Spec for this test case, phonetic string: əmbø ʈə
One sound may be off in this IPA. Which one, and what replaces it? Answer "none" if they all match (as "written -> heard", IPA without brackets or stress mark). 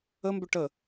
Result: none